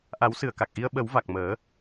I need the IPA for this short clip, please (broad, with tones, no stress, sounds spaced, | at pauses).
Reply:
ʔ a˨˩˦ w s ɨ˨˩˨ ə̯ k a˨˩ k̚ ʔ i˧ ə̯ ɓ ə˨˩˦ w v a˨˩ k̚ m əː˨˩˦